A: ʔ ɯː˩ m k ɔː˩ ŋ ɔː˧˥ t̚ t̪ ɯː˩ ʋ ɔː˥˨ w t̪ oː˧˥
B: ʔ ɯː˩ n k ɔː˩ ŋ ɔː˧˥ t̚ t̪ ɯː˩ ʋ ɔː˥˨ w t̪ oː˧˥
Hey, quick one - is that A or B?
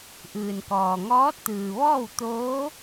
B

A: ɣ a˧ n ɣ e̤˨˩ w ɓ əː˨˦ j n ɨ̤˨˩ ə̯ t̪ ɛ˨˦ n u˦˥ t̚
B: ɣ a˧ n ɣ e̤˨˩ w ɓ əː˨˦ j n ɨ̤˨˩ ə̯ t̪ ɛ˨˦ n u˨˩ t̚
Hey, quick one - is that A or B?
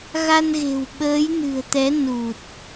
B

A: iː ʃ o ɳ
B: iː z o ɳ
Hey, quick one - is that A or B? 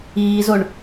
B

